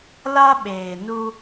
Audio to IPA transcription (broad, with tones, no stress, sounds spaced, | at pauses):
l a˦ ɓ eː˨ n u˦